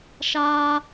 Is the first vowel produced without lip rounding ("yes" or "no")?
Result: yes